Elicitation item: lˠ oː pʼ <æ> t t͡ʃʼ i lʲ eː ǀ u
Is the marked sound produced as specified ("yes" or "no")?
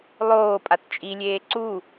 no